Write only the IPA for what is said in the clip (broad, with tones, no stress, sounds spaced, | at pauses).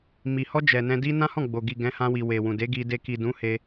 m i˨ h ɔ˧ d͡ʒ ɛ˨ n ɛ̃˧ d i˦ n ã˦ h ɔ̃˦˨ ɡ͡b o˨ ɡ i˨ ɡ ɛ̃˨˦ h ã˧ w i˨ w e˨ w ũ˨ d e˨˦ ɡ i˧ d e˧ k i˨ d ũ˨˦ h e˧